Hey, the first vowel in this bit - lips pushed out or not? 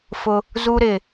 yes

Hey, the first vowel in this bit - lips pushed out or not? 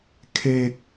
no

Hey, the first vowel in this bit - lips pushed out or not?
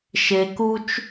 no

